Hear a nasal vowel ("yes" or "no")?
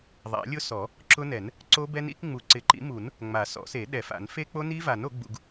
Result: no